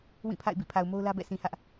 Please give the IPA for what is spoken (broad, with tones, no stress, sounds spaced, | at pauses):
w ĩ˦˨ pʰ a̰˦˨ ɪ̯ b ḭ˦˨ pʰ a˨ ʊ̯ m o˦ ʊ̯ l ä˦ b ɛ̰˦˨ sʰ ĩ˨ h ä˦ ʔ